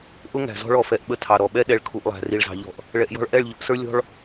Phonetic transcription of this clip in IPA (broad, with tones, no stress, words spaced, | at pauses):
ʔʊ˦ ŋæ̤˨zɔ̤˦ɭ ɔ˨fɛ˨ʔ ɓə˦tʰɑ˨ɾɔ˨ ɓɛ˦ ɗɛ˨ɭ kʰu˨ʔlˠæ̤˨ ri˨ɭzɑ̤˨ʎɔ̤˨ʔ | ɭɛ˨ʔjɔ̤˦ɭ ʔɛ˦˨ɭ ʎʊ˨˦ʔsə˞˦ lʲɔ̤˦ɭ